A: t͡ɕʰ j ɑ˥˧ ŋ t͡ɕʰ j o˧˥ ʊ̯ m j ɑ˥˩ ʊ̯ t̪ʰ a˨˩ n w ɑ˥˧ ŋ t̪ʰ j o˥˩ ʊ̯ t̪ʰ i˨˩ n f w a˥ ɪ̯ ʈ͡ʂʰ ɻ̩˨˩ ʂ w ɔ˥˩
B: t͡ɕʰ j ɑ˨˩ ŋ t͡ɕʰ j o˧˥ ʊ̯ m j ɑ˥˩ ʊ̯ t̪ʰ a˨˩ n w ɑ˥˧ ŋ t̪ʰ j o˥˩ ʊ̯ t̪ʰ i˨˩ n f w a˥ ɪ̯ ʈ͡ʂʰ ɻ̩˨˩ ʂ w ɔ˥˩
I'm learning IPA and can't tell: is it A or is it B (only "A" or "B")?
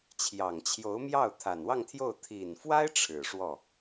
B